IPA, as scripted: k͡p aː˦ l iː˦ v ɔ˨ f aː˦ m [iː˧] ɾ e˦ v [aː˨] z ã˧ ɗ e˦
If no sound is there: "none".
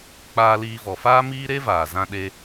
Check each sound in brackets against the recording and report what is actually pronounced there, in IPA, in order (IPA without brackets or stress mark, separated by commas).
iː˦, aː˨